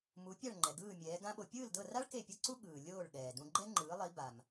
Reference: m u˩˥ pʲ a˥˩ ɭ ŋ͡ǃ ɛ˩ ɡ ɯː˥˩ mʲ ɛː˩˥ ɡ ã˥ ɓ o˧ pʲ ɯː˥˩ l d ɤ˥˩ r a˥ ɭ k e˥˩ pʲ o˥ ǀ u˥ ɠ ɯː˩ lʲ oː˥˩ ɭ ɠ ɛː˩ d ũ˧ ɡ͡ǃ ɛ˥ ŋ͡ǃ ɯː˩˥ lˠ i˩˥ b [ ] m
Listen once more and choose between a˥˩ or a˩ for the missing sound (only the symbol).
a˩